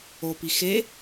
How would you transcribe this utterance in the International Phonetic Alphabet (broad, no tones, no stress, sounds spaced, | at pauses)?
o p i x e